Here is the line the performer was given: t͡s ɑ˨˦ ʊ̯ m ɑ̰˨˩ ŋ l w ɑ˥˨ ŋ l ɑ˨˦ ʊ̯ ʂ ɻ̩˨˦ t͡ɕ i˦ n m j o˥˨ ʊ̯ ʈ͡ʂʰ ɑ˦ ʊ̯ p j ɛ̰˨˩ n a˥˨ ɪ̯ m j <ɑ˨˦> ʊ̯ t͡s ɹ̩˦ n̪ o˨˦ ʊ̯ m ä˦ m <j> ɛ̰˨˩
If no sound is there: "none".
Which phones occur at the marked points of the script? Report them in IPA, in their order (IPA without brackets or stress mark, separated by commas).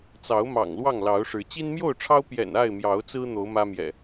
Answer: ɑ˨˦, j